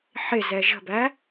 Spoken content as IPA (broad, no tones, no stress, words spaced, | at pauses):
ħɪzɛ ʒə̤bæ